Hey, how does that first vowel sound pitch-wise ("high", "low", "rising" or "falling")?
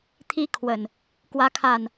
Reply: high